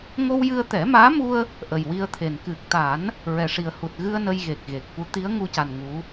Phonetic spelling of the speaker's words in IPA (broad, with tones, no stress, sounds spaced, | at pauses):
ŋ o˧ w j ɨ˧ ə̯ t̪ ɛ˨˩˦ m aː˧˥ m u˧ ə̯ | ʔ ə˨˩ j w i˧ ə̯ t̪ʰ e˨˩ n k ɨ˨˩ k̚ t̪ a˨˩˦ n | ɹ ɛ˨˩ ʂ i˨˩ ə̯ h u˨˩ t̚ ɣ ɨ˧ ə̯ n ə˧ j ɣ e˨˩ k̚ ɣ e˨˩ k̚ f u˧˥ t̪ i˧˥ ə̯ ŋ u˧ c a˨˩ n ŋ u˧˥